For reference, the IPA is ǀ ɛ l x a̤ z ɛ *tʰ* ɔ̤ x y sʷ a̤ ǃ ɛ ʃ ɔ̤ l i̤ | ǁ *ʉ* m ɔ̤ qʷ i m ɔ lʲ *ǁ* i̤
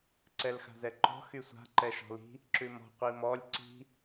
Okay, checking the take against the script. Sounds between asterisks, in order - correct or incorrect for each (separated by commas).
incorrect, correct, incorrect